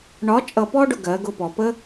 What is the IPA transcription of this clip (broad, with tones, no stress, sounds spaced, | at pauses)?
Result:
ɳ ɒ˧˥ t͡ʃʼ ʌ˧ p ɔ˥ ɖ ʊ˧ ɡ ɜ˩˧ ɡ ʊ˧ p ɔ˩ p ə˥